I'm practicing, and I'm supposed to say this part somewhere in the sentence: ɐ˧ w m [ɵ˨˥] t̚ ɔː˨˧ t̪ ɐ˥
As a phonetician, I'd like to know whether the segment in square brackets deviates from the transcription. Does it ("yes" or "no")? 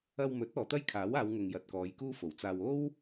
no